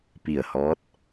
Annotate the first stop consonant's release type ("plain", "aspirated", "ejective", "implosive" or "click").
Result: plain